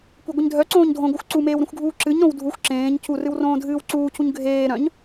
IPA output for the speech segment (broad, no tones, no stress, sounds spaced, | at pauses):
kʷ e ɡʷ ɨ ɲ dʱ œ ǀ õː ɲ dʱ õ ɡʷ œ xʷ ǀ u m eː w ɾ ũ xʷ ɡʱ uː ǁ ɨ ɲ ɾ õ w dʱ u xʷ ǁ ẽː ɲ cʰ u r ɨ w r õː dʱ ɨː w ǀ uː cʰ u ɲ ɡʱ eː ɾ œ̃ ɲ